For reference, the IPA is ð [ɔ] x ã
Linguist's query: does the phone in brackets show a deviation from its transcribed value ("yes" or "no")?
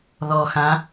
no